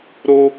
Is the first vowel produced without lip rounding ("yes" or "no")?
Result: no